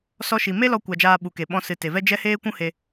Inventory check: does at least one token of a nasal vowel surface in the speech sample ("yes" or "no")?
yes